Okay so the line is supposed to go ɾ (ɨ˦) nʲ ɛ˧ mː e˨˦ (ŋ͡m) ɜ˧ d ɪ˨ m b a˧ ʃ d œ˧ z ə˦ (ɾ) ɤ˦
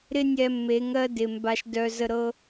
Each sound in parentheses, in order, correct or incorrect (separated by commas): incorrect, incorrect, correct